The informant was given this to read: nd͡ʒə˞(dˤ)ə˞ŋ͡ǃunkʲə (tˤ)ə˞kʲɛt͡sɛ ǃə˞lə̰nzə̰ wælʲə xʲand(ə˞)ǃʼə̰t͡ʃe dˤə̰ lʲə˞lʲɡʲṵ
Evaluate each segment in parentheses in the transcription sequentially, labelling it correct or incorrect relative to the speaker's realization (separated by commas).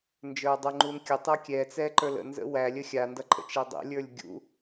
correct, correct, incorrect